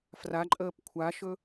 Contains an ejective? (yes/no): yes